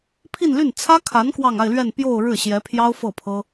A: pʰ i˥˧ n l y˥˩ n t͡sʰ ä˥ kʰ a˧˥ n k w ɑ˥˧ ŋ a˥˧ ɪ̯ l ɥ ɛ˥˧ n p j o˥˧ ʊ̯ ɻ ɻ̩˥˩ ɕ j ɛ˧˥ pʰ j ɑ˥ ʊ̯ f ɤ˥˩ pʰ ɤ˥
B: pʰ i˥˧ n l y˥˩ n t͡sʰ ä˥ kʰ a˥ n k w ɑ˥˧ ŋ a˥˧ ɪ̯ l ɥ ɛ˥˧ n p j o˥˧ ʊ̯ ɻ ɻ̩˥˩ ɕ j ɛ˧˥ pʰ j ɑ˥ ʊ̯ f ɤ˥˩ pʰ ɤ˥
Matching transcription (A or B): A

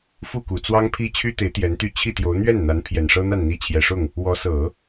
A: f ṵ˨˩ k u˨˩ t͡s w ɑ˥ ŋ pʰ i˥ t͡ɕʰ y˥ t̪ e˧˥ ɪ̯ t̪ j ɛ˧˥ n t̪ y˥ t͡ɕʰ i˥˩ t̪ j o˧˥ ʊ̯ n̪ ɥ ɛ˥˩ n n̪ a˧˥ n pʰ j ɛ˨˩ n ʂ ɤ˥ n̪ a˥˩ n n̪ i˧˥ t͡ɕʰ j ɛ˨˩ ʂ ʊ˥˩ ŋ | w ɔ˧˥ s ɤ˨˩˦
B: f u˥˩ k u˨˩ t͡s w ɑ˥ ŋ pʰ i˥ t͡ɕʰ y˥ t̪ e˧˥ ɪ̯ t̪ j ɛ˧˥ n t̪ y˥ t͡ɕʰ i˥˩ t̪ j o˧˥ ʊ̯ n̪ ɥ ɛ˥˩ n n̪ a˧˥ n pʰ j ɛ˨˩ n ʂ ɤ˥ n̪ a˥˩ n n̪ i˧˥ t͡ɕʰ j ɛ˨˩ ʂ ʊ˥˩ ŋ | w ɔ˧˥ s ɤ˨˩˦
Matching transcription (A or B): B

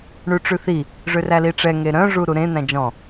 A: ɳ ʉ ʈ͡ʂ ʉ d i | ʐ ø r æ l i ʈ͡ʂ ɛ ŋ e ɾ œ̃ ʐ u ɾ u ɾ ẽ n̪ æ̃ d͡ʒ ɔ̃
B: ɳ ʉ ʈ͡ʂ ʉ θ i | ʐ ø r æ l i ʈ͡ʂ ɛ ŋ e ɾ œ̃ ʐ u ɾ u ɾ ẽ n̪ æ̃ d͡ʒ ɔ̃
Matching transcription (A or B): B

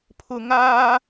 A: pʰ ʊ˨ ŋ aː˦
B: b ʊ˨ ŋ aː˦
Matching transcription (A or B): A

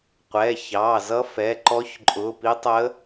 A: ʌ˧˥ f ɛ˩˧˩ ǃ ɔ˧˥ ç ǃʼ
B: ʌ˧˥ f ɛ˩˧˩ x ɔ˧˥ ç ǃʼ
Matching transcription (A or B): A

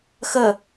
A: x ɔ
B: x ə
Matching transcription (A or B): B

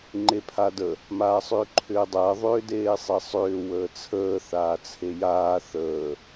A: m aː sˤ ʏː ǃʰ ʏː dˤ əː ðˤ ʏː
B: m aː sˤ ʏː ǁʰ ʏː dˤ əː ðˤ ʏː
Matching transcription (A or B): A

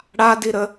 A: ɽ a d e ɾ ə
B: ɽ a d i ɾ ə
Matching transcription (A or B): B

